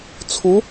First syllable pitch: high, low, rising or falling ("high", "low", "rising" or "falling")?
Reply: rising